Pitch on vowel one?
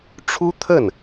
high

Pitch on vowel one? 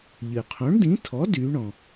low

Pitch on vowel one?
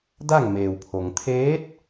falling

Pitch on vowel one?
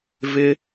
high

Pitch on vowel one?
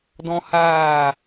high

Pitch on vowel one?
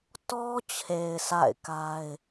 high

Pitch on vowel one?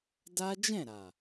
high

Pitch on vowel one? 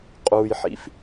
low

